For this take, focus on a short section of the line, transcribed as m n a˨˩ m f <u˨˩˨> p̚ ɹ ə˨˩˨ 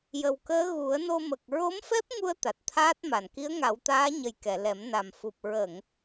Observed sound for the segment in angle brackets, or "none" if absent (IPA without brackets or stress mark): u˨˩